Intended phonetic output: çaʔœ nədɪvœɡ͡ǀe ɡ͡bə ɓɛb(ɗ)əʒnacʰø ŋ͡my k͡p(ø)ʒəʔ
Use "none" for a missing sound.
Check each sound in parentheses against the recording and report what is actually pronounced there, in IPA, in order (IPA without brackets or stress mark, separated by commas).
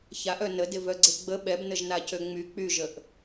n, y